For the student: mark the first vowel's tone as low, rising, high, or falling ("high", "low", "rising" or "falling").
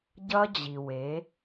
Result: high